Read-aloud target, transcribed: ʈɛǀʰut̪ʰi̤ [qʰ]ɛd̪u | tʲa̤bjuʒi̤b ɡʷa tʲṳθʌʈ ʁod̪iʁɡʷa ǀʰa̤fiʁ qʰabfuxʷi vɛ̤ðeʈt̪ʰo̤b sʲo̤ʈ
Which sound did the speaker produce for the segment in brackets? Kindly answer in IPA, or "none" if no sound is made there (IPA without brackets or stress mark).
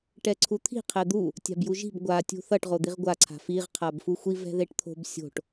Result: qʰ